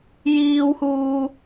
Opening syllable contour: high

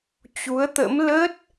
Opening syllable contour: rising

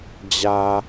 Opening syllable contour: low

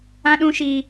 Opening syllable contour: high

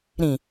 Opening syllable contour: low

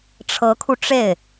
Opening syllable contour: rising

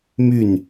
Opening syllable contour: falling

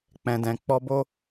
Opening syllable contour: low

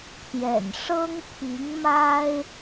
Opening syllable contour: low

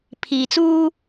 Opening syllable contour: low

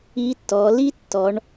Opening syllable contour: rising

